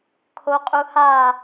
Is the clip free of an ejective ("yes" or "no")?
no